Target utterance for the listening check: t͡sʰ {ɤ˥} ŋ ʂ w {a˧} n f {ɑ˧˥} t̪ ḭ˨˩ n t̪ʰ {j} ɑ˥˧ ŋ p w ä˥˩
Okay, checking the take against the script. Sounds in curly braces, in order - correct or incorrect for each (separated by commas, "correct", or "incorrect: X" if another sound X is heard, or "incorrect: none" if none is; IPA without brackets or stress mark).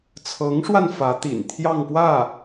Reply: incorrect: ɤ˧˥, correct, incorrect: ä˧˥, correct